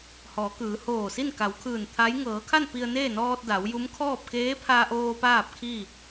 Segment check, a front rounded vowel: absent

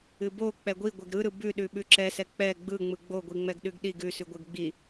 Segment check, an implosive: present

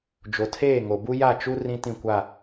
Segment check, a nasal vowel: present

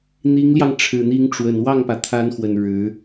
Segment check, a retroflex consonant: present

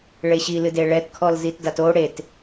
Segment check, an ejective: absent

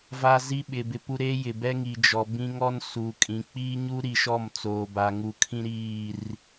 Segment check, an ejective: present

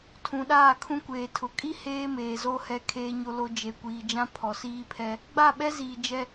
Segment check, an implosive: present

